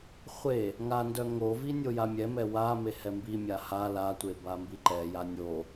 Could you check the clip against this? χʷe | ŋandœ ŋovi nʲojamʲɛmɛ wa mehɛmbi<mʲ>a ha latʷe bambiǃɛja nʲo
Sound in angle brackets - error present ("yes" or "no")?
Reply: no